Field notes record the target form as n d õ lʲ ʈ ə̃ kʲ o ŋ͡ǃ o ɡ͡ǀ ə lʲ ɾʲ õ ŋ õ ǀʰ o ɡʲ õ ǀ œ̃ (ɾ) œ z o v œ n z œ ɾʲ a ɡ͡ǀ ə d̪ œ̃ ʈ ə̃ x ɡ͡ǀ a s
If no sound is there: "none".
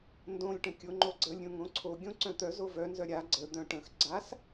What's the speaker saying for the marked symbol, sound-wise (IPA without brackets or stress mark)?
t̪